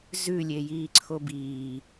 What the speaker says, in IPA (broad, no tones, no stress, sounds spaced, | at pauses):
z ʉ lʲ e j iː ǀʰ o b iː